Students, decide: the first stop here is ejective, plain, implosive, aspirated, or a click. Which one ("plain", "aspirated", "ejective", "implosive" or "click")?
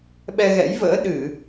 implosive